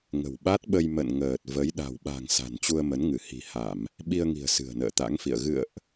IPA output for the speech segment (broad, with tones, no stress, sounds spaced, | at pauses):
ŋ ə̤˨˩ w ɓ a˦˥ t̚ ɓ ə˧ j m ə̰˧˨ n ŋ əː˨˩ t̚ v ə˨˦ j ɗ a̤˨˩ w ɓ a̤˨˩ ŋ s a̤˨˩ n t͡ɕ u˧ ə̯ m ə˨˦ n ŋ ɨ˧˩ h i̤˨˩ h a˧˩˨ m | ɓ i˧ ə̯ ŋ i̤˨˩ ə̯ s ɨ̤˨˩ ə̯ n ə̰ː˧˨ t̪ a̰˧˥ ŋ f ḭ˧˨ ə̯ ɣ ɨ̰˧˨ ə̯ ʔ